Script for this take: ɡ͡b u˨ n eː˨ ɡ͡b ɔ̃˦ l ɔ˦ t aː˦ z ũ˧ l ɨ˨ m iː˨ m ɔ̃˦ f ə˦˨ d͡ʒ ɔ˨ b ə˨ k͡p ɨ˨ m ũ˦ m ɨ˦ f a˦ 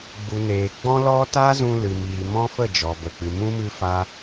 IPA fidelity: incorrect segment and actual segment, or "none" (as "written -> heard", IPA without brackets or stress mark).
none